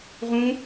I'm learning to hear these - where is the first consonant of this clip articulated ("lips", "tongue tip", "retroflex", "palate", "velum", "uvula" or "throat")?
uvula